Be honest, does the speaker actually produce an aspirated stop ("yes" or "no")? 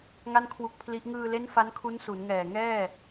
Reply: yes